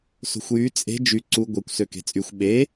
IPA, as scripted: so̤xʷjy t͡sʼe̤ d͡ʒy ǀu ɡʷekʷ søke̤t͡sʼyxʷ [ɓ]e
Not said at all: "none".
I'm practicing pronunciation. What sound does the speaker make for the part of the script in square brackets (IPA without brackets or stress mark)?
ɓ